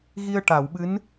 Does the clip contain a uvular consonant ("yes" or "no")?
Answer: no